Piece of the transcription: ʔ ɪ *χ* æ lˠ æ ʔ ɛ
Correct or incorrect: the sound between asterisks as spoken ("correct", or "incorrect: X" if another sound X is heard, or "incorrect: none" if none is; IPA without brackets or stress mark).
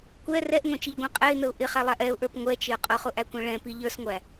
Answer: correct